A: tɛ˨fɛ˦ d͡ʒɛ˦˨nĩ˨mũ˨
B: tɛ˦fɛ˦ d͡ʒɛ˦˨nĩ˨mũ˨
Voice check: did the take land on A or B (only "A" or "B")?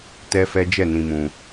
B